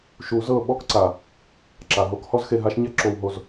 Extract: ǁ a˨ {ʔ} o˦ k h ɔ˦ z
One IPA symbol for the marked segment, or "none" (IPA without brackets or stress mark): ɦ